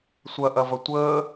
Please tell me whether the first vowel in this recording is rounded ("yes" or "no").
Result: no